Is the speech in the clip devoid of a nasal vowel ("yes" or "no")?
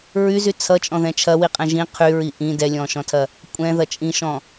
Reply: no